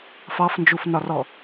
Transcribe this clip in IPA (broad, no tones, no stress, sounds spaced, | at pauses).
f ɑ f n d͡ʒ u f n ɒ r ɔ